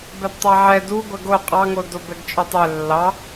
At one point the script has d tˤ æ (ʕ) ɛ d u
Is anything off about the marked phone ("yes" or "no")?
no